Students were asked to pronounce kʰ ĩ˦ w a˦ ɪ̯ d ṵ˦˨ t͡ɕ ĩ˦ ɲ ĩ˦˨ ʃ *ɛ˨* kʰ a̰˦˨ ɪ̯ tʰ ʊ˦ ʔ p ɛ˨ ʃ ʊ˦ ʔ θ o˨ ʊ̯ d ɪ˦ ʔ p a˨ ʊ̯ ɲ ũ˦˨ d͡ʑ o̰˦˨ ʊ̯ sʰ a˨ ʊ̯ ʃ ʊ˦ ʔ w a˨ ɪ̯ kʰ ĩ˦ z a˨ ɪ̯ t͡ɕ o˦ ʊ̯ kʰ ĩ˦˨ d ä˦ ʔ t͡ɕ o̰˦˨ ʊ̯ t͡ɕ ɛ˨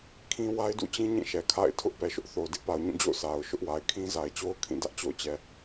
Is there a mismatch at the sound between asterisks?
no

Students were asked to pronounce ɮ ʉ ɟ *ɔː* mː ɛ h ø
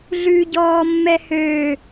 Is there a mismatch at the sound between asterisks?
no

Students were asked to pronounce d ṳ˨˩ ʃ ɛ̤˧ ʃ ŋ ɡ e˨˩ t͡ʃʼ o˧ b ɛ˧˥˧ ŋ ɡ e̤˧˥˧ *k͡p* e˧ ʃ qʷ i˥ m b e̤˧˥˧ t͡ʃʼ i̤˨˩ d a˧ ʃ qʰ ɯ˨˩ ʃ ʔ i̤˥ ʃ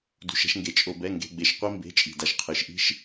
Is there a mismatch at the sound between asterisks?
yes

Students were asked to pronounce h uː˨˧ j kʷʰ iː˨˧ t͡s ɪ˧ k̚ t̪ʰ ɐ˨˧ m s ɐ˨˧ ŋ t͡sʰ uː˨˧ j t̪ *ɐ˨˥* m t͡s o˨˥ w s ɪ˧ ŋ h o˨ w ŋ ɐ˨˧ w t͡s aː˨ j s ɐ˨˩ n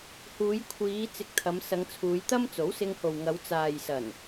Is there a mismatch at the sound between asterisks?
yes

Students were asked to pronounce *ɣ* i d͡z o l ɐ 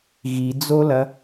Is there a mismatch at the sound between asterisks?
no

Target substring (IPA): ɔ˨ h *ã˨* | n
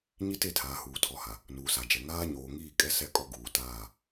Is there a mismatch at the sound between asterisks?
yes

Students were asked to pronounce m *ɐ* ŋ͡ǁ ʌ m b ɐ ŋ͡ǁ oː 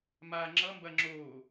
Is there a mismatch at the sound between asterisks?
yes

